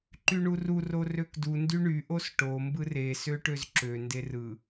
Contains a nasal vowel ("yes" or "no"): no